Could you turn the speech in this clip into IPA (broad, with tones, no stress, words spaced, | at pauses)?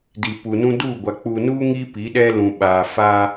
di˨pu˨nũ˦ duː˦˨ ɡʷa˨ k͡puː˨nuː˦ ŋi˦ pi˨˦ɗɛ˦ lũ˨ɓaː˨faː˦